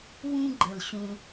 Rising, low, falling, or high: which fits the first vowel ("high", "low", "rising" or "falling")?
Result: high